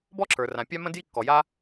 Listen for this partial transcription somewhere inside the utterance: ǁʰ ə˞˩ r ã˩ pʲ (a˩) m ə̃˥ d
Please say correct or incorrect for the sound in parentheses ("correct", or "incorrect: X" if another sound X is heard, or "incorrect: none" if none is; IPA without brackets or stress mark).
incorrect: a˥